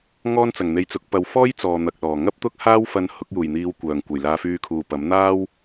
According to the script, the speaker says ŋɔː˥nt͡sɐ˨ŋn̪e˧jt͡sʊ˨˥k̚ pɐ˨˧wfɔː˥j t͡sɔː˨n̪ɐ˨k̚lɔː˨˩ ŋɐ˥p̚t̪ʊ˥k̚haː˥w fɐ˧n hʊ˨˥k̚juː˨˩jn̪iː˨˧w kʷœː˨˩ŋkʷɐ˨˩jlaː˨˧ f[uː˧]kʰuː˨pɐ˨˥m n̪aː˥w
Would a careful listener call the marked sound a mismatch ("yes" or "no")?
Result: yes